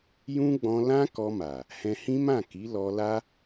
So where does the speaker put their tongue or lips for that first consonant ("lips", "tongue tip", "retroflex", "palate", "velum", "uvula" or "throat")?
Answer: palate